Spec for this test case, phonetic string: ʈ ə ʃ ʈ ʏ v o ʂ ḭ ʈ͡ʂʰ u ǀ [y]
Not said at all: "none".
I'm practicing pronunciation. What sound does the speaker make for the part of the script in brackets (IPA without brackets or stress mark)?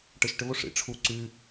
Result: y